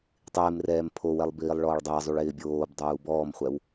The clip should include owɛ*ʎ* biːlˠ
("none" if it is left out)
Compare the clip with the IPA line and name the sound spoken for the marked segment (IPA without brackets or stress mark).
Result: lˠ